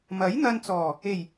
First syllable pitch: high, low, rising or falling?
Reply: rising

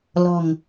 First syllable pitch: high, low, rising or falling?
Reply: low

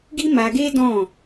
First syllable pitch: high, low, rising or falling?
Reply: high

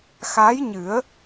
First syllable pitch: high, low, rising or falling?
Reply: rising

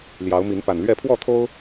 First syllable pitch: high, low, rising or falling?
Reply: rising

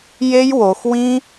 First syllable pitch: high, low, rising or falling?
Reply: high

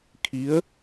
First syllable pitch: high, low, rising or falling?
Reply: rising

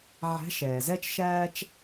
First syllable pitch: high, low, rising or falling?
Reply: rising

